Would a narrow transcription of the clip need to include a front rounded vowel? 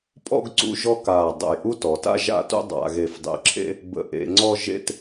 no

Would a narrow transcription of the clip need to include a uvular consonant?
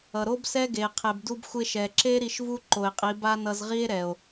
yes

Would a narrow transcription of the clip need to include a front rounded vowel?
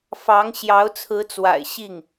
no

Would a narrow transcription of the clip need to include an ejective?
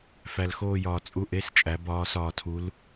yes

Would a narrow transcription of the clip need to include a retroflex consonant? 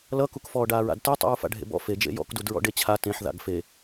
yes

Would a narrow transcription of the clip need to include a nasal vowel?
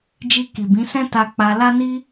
yes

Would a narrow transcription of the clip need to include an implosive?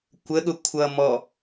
yes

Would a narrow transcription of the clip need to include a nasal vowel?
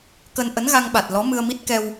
no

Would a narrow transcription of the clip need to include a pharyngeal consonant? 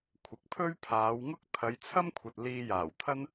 no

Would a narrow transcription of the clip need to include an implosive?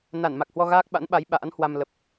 yes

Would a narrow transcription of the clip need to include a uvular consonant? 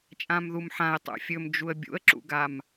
no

